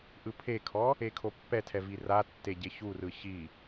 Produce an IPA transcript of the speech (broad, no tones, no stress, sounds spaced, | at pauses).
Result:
ʔ ɯ pʰ e kʰ ɔ | e kʰ o pː ɛ tʰ ɛ v i r a tː e ɟ e ç u r ɯ ç i